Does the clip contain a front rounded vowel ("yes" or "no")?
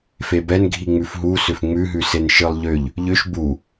yes